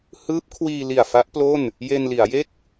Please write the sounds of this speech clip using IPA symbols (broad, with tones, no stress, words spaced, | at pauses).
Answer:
hɯː˦˥p̚ kʰwiː˧li˨˩a̯ fa˦˥ʔplo˥˩n | je˧nli˩˦a̯je˥˩k̚